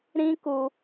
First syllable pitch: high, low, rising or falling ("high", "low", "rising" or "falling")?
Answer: high